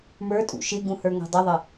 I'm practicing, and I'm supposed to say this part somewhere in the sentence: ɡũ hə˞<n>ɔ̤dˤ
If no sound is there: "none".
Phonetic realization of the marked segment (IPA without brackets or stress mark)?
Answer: ŋ